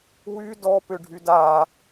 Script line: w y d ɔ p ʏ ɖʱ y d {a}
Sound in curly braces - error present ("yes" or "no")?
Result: no